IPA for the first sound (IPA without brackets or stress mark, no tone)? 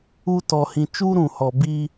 u